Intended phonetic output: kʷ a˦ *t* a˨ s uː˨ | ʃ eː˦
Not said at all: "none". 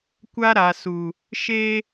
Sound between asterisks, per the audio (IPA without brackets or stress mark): ɾ